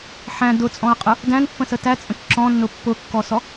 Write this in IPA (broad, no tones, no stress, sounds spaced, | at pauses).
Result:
ħ æ̃ d ʊ t͡sʼ ɔ̃ ɐ̯ qʼ ʊ | d æ̃ n pː ə̃ s ə t æ t͡sʼ ə̃ k ǁ ɔ̃ nː ʊ pː ʊ kː ɔ s ɔ